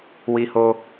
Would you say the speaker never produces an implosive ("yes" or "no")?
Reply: yes